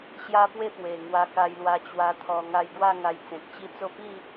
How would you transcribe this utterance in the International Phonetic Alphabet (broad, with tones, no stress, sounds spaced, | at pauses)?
ɕ j a˦ p w e˥˧ p w e˨˩ ŋ w a˧ k a˧ j l w a˧ t͡ɕ w a˧ t̪ʰ ɔ˨˩ ŋ a˧ j ɡ w a˥˧ ŋ a˧ j t͡s ẽ˨ k̚ t͡ɕ i˦ t͡s o˥˧ p i˥˧